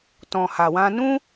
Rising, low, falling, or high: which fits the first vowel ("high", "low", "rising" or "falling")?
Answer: low